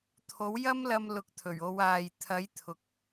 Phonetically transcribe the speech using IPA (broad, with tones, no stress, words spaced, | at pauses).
t̪ʰo˨˥wjɐ˥mlɐ˧m lʊ˨˥k̚t̪ʰɵ˨˩ɥo˨˧waː˨j t̪ʰɐ˨˥j t̪ʰʊ˨k̚